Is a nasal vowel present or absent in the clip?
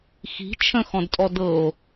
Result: present